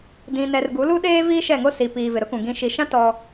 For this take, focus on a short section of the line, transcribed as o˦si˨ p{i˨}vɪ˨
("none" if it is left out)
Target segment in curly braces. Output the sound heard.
iː˨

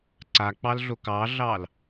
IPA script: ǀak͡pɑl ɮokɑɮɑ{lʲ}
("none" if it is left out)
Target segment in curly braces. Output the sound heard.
l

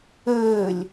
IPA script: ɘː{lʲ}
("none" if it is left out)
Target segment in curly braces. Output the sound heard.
lʲ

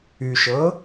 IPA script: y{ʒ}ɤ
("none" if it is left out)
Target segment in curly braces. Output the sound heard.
ʃ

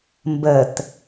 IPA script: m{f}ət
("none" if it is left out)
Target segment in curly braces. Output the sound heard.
b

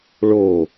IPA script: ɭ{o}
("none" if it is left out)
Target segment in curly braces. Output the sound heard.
o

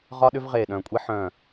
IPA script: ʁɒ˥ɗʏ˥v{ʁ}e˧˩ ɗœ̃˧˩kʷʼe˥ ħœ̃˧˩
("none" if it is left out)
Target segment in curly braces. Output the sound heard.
ʁ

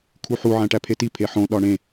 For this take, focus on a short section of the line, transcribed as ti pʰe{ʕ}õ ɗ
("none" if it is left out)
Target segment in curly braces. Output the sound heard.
ħ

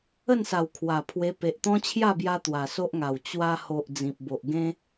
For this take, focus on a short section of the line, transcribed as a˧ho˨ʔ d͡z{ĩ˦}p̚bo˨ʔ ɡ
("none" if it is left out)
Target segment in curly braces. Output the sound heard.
ĩ˨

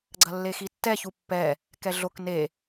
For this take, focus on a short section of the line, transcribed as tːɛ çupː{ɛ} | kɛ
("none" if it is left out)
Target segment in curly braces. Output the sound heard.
ɛ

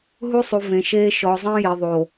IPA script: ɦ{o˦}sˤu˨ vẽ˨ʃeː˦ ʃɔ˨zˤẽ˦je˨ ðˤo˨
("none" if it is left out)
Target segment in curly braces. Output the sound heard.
u˦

